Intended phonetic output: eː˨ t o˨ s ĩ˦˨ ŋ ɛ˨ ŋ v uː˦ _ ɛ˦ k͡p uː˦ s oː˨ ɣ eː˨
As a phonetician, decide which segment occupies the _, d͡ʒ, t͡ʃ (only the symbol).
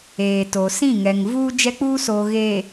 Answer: d͡ʒ